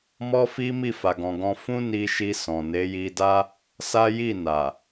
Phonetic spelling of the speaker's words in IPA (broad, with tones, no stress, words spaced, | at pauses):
mɔ˦fi˦ mi˦˨fa˨ɡɔ̃˨ɡɔ̃˧ fũ˦ni˧ʃi˧sɔ̃˨ ne˨˦ji˧da˦ | sa˦ji˦˨na˨